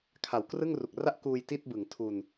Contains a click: no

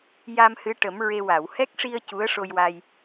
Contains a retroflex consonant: yes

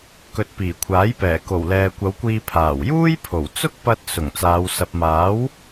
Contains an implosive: no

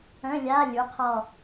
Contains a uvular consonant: yes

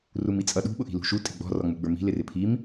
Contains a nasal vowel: no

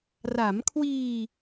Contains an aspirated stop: yes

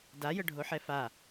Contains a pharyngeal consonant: yes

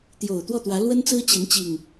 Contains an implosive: no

